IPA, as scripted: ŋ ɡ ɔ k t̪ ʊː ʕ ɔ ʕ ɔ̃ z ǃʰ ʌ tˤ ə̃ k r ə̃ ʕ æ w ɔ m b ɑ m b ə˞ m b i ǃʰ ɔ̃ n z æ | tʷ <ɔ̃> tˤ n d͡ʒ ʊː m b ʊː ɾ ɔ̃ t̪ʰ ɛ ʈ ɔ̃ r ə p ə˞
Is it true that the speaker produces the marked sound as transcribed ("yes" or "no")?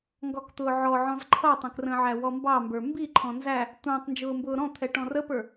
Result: no